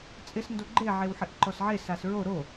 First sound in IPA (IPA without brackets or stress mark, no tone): t͡sʼ